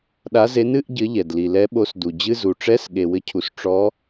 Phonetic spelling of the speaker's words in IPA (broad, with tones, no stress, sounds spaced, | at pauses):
ɗ a˨˦ z e˨˦ n ɨ˧˥˧ ʔ ɟ ɘ˨˦ ʎ ɛ˩ d l i˩ l ɛ˨˦ ɓ o˨˦ s d u˩ d͡ʑ ɨ˧˥˧ z u˩ ʈ͡ʂ ɛ˧˥˧ s ɠ e˩ w ɘ˨˦ cʰ u˩ s ʈ͡ʂ ɔ˨˦